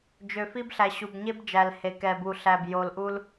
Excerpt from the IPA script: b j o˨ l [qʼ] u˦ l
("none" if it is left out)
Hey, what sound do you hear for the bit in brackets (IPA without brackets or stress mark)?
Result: ʔ